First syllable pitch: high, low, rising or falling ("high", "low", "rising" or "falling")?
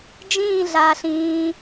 falling